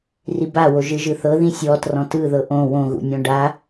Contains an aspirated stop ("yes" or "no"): no